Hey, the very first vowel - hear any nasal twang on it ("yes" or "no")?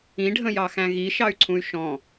yes